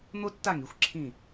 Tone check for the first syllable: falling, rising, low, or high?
high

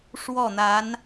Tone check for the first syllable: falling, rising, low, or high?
falling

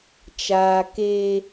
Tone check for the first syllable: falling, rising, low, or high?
low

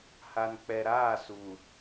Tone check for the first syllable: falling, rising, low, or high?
low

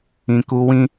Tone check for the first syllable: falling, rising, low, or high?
low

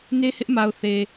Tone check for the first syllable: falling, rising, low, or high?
high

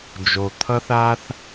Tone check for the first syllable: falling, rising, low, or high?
low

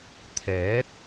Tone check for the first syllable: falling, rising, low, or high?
rising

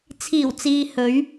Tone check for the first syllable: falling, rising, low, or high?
low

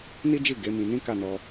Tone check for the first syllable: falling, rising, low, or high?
high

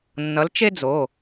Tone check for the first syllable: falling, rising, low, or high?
rising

